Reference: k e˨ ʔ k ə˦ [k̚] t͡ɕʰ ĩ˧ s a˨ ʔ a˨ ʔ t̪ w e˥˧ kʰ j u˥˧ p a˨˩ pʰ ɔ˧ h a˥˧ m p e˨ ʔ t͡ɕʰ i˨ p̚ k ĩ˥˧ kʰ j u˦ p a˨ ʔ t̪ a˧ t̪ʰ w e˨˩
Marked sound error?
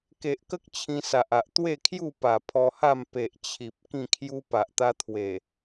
no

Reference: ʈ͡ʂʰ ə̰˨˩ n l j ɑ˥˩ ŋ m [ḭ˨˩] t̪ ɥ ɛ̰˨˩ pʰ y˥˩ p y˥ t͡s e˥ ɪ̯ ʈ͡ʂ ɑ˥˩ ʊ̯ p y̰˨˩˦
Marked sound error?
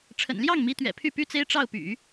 yes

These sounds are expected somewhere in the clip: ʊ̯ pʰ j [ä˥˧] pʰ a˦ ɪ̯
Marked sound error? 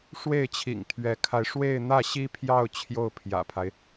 yes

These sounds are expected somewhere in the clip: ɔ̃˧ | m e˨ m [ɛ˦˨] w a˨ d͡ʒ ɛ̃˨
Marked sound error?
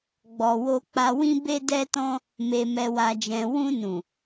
yes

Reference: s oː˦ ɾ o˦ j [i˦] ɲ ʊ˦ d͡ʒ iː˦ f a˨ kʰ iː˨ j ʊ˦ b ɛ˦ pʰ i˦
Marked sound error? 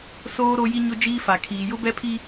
no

